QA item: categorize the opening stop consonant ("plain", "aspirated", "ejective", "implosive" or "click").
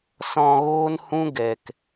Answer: plain